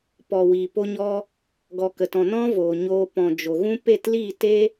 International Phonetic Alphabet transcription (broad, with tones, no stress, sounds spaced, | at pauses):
p ɔ˨ w iː˨ p o˧ ɲ ɔ˧ | ɡ ɔ˨ k ə˨ t ɔ̃˨ n ɔ̃˦ v oː˨ ɲ oː˧ p ɔ̃˨ d͡ʒ o˨ ɣ ũ˦ p e˦˨ t l i˦˨ t e˦